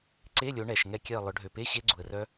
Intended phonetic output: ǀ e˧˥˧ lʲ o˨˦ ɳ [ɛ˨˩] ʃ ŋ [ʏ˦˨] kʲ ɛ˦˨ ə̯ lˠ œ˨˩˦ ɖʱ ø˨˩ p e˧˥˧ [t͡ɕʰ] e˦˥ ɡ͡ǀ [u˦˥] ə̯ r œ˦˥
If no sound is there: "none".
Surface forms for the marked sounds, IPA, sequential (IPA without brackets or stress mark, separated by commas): ɛ˨˩, ɛ˦˨, ɕ, u˨˩